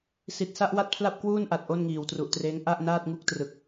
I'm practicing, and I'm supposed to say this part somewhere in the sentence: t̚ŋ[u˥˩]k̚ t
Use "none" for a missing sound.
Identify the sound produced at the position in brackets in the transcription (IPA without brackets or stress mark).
u˥˩